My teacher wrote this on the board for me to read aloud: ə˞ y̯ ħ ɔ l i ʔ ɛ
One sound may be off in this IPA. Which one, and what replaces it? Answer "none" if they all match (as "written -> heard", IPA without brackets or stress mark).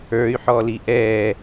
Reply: none